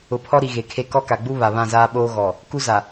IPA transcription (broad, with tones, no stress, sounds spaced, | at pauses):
ʊ˨ pʰ ɔ˦ ɾ i˨ ɣ e˨ kʰ e˦ k ɔ˦ k a˨ ɡ͡b u˦ β a˨ β ã˦˨ z aː˦ ɓ oː˦ ɣ ɔ˨ | k u˦ z a˨